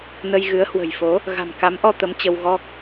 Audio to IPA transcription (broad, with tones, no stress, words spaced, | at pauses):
nə˧jɣɨ˨˦ə̯ hwə̤˨˩jfo˨˦ | ɣa̤˨˩mka˨˦mʔɔ˧ t̪ə˨˦mt͡ɕə˧wɣɔ˦˥k̚